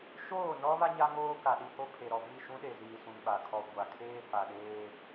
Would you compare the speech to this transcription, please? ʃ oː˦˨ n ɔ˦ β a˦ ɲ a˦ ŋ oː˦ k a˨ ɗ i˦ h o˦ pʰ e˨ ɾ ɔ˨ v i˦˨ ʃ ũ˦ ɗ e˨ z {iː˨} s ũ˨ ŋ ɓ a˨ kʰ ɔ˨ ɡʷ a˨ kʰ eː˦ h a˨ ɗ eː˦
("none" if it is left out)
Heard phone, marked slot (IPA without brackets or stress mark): iː˨